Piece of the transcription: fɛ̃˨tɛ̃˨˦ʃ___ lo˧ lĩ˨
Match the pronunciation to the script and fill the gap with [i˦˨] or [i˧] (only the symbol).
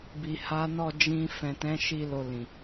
i˧